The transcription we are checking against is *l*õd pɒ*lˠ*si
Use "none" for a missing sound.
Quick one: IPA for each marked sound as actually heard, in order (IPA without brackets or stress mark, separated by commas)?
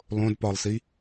lˠ, lˠ